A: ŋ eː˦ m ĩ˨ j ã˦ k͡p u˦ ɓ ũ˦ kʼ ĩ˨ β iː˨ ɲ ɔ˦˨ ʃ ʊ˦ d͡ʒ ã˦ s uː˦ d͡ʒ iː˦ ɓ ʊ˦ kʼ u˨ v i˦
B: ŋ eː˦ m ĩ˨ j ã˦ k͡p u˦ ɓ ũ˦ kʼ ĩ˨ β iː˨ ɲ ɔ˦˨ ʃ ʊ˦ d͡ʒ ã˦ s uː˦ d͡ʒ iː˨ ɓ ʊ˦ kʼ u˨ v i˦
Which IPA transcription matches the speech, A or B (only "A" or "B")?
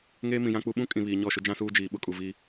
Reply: B